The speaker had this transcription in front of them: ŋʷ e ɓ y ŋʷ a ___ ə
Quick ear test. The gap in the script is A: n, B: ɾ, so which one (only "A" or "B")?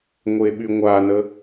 A